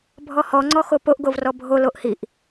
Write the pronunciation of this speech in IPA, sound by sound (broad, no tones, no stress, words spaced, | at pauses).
bʱɔhɔŋ͡ǀɔ xopoʔɡov rɔbʱoloʔ hiʔ